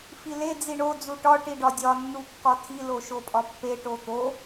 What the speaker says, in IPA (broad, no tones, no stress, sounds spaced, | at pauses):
f i l e d͡z i ɳ o d͡z u ʈ ɒ ʈ i ɖ ɒ dʲ ɒ nː u kː ɒ tʰ i l o ʃ o pʼ ɒ pː e ʈ o t̪ o